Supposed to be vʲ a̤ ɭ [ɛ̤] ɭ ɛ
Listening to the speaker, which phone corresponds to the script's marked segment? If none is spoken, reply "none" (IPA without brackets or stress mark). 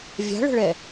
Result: ə̤